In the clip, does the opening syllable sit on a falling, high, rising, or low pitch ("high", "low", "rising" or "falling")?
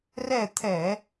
falling